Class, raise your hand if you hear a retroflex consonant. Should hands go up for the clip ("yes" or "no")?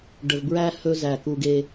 yes